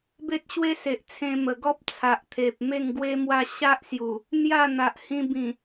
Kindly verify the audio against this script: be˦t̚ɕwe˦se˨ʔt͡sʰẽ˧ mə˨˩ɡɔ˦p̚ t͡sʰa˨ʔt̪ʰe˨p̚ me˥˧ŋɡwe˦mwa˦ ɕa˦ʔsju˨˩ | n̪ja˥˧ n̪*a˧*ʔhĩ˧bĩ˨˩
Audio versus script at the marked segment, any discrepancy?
yes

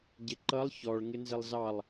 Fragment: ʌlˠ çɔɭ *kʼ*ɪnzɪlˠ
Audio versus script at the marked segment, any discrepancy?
yes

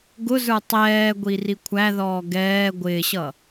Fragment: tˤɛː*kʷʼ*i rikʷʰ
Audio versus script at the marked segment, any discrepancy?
yes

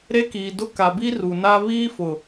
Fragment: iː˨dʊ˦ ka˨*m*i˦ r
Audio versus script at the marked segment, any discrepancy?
yes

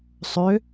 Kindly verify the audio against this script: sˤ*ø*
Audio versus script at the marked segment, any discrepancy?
no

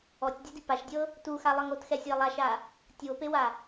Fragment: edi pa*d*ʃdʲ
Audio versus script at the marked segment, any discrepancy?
yes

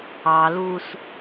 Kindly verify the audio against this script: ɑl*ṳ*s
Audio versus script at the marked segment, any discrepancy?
yes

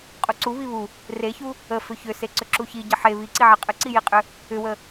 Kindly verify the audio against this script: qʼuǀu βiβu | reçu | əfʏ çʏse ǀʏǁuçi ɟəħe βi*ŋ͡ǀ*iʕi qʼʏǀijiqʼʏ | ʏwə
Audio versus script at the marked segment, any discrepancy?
yes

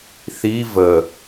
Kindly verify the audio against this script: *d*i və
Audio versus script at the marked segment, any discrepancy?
yes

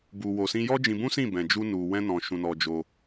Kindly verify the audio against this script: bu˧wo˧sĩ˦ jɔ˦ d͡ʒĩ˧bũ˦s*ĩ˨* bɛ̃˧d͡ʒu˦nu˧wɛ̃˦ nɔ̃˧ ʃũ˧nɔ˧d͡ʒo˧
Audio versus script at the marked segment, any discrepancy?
yes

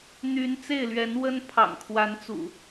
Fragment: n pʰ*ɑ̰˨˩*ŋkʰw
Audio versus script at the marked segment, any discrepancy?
no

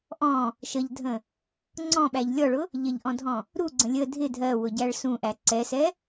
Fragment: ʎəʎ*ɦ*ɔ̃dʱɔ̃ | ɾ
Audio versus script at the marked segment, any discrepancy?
yes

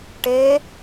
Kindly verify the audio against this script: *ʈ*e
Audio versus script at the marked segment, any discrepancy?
no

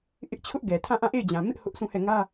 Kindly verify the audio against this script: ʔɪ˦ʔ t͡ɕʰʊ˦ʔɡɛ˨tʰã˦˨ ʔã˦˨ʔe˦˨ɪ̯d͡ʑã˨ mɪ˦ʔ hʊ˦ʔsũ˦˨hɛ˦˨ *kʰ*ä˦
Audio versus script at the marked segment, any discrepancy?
yes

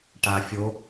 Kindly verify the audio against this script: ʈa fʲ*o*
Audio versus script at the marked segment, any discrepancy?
no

